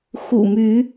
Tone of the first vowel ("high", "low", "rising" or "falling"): low